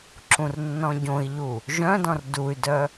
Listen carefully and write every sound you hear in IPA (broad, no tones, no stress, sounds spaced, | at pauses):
ǁ ũ r nː ɔ̃ ɟ õ i̯ ʎ u | ʒ œ̃ d ɔ̃ r d u y̯ d œ